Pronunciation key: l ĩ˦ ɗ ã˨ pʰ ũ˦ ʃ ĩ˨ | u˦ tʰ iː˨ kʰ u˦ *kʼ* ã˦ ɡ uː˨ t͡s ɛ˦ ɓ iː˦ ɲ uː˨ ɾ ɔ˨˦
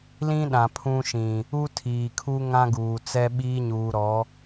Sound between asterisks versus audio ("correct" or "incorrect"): incorrect